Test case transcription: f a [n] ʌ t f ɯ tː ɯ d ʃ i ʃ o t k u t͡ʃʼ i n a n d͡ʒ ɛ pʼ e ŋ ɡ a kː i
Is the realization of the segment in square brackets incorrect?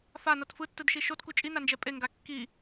no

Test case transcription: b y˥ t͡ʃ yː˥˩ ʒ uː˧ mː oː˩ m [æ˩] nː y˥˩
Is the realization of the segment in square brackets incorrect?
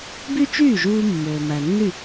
no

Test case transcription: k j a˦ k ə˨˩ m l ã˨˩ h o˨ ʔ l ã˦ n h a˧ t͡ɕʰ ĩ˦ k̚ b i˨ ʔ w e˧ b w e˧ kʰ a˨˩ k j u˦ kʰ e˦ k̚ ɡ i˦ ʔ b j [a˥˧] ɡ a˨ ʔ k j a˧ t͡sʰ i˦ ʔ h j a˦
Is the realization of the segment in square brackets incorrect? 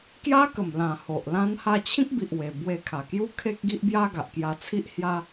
yes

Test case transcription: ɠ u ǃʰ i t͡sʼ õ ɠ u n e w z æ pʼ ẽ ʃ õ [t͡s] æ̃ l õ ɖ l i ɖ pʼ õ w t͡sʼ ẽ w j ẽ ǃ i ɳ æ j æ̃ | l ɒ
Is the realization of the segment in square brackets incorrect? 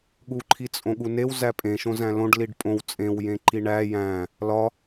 yes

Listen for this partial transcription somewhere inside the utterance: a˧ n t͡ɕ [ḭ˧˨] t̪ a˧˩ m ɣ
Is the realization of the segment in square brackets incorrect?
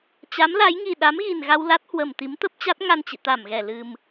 no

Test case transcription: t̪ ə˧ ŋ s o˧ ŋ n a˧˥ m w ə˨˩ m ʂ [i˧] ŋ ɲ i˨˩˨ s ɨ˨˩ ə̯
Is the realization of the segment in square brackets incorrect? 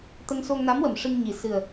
yes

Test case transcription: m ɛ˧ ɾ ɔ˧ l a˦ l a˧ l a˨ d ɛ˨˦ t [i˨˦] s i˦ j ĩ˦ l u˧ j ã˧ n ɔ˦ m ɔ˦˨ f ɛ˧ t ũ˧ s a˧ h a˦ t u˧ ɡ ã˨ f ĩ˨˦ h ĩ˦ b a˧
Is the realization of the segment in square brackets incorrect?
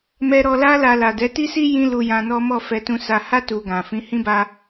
yes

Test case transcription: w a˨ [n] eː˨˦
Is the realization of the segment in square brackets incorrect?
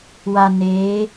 no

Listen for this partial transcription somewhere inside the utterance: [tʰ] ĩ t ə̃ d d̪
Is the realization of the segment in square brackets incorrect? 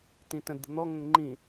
yes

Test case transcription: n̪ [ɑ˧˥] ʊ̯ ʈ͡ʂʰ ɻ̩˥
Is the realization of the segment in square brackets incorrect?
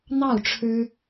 yes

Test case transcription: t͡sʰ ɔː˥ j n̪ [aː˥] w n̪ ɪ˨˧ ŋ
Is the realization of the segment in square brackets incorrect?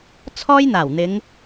yes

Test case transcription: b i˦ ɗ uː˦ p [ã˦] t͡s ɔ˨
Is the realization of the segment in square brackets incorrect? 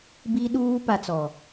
yes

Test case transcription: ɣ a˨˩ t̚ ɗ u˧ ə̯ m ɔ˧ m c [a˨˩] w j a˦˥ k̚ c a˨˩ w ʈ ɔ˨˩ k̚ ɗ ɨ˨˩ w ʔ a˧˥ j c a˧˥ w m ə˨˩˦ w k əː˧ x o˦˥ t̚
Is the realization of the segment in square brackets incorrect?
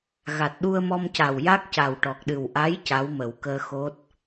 no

